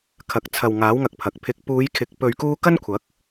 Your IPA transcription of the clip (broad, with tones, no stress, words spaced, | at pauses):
kʰɐ˨k̚t͡sʰɐ˨wŋaː˨˥w ŋɐ˧k̚pʰɐ˨k̚pʰɪ˧k̚ puː˨˧jkʰɪ˨˥k̚ pɵ˧ɥkuː˥ kɐ˥nkʷʰɐ˨˥k̚